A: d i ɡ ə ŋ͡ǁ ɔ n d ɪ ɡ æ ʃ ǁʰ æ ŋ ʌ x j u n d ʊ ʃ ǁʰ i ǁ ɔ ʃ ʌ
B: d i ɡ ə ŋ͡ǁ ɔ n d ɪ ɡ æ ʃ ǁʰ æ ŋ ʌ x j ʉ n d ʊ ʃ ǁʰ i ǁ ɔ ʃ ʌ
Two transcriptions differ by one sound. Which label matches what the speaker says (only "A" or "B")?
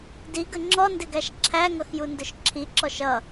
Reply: A